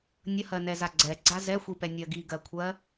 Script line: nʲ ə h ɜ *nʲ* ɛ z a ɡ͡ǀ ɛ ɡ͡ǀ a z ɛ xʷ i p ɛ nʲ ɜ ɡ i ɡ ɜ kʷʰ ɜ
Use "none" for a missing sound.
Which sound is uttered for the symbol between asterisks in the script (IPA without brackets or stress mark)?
n